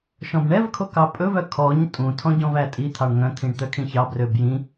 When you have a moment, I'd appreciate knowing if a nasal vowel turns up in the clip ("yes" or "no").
yes